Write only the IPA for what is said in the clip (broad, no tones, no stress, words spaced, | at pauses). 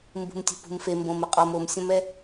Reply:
mbṳmtʲṳpṳmfe mbõmɘqʼɔm omsʲɔ̃mɛ